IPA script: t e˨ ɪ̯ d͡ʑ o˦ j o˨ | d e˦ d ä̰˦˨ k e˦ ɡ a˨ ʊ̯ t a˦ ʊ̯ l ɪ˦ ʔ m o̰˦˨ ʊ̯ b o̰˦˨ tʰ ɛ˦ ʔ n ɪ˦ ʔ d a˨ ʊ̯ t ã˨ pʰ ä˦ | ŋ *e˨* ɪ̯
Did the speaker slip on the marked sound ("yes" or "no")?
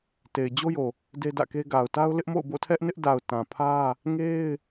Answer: yes